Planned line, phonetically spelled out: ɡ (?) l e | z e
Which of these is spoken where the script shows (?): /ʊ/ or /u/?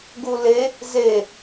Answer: u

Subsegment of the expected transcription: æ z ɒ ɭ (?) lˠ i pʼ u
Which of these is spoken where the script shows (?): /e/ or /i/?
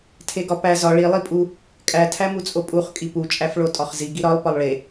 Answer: i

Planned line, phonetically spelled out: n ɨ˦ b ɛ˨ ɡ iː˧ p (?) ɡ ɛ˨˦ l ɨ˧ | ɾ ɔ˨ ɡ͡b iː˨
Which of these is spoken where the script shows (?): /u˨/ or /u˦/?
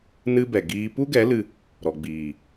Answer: u˦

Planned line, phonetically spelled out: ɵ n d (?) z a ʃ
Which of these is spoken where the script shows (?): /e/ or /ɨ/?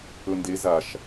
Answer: e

